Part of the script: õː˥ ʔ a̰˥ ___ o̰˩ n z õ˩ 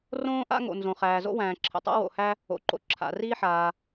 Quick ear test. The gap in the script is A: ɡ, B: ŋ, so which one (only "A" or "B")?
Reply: B